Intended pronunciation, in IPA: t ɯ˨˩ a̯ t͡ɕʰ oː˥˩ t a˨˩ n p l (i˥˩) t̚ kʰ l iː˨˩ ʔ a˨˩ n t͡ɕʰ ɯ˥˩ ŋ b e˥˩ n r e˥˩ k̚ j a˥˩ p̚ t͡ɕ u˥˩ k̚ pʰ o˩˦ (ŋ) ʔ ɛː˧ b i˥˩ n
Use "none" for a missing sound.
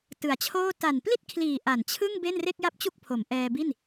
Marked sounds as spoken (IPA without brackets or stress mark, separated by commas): i˥˩, m